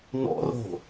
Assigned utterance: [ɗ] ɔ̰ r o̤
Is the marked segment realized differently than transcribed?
yes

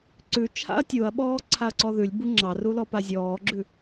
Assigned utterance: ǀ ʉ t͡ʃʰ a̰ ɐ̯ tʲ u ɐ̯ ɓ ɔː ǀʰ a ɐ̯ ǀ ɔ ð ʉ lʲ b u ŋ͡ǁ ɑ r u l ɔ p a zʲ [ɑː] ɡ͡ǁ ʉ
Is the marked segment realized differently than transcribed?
yes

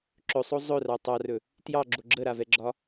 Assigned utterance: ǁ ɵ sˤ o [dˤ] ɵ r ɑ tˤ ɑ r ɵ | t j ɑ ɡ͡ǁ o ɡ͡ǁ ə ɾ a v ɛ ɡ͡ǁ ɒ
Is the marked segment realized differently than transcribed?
yes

